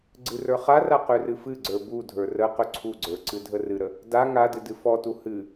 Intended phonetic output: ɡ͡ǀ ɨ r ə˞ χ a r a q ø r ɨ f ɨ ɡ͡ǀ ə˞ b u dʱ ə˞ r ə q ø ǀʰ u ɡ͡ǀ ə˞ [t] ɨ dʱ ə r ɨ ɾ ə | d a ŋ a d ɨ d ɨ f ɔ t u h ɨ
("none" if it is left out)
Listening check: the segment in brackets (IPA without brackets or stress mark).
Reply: ǀ